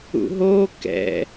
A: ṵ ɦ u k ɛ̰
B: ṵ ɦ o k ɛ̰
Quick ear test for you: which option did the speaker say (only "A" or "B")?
B